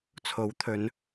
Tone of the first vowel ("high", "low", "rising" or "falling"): rising